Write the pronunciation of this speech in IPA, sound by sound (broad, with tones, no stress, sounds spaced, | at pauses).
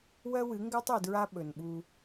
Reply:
w ɜ˦ w ɨ˨˦ ŋ ɡ ɜ˦ tˤ i˨ d ɹ a˦ ɓ ɵ˨ n ɓ u˦